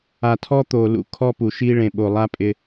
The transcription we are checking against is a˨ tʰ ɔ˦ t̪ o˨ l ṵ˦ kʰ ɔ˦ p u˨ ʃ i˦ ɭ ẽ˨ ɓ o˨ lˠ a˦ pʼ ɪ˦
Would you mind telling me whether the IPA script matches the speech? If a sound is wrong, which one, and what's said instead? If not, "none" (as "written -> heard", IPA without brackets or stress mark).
none